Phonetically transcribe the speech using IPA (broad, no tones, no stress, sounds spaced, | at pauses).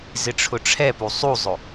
z ɪ ʈ͡ʂʰ ʊ ʈ͡ʂʰ ɛ p u sˤ u zˤ ʊ